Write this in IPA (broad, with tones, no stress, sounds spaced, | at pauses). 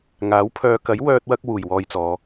ŋ aː˨˥ w pʰ œː˧ k ɐ˨˥ j w œː˥ t̚ w ɐ˥ k̚ w uː˨˩ j w ɔː˧ j t͡s ɔː˨˧